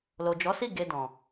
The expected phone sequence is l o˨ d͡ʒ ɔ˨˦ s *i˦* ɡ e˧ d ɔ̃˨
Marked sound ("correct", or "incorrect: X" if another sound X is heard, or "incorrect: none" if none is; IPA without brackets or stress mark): incorrect: i˦˨